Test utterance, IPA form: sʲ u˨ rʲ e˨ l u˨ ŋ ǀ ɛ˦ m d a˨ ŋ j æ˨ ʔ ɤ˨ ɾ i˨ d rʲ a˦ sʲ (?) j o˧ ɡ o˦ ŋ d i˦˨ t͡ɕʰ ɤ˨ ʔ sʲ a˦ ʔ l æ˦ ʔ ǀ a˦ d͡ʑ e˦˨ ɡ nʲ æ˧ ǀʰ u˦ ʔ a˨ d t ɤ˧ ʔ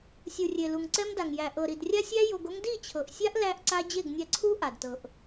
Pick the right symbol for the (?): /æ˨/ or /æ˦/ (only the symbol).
æ˦